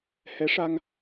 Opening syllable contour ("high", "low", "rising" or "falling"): rising